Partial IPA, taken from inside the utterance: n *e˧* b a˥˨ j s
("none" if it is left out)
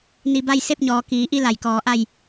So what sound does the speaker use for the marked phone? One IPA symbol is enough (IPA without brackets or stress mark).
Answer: i˧